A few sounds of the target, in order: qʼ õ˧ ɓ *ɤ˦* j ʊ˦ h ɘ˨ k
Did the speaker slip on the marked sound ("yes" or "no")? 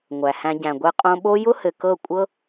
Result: yes